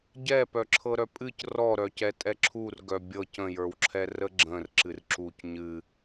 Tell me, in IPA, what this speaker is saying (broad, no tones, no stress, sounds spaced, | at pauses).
ɟ ɛ p œ ǁʰ ɤ ɾ œ pʼ ɨ c r ɔ ɾ œ c ɛ tʼ ɛ ǁʰ u r ɡ œ bʲ ɤ c ə̃ j ə˞ w ǁʰ ɛ r ə ɡ͡ǁ ə̃ r ǁ ɨ r ǁ u c ɲ ɨ